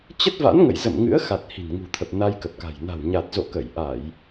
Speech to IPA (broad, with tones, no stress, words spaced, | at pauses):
t͡ɕə˦˥t̚va̰˧˥nŋə̰˧˨jzə̰˧˨m ŋɨ̰˧˥ə̯xa˨˩t̚ hi̤˨˩nŋṳ˨˩t̪ʰə˨˩p̚ na˧jkə˨˩p̚ka̤˨˩j na̤˨˩wɲa˨˩t̚zo̰˧˨ kə˧˩jʔa˧˩˨j